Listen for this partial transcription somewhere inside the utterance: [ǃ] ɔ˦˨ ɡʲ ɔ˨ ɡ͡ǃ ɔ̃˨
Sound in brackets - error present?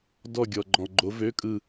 yes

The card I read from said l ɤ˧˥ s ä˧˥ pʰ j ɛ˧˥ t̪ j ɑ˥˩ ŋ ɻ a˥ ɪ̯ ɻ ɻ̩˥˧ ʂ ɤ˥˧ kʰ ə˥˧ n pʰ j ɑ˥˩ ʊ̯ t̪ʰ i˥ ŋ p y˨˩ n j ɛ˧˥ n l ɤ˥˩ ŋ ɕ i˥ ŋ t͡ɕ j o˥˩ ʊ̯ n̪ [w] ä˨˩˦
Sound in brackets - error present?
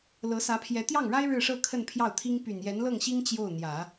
yes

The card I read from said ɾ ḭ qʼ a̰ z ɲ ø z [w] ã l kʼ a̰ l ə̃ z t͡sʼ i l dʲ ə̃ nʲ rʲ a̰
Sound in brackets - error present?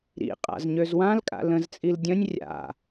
no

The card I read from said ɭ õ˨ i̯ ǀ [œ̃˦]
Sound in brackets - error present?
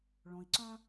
no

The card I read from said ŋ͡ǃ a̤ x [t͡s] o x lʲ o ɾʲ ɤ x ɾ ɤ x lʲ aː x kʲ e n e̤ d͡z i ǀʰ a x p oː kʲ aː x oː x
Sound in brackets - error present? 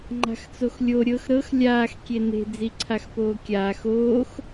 no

